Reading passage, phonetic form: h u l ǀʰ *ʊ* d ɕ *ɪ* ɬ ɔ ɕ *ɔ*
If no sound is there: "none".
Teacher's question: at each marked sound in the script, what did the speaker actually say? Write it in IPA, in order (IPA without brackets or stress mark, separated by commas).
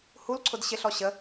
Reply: ʊ, ɪ, ə